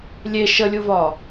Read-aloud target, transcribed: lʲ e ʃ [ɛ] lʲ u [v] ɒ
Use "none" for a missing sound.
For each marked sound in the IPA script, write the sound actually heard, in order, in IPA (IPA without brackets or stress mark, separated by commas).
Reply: ə, v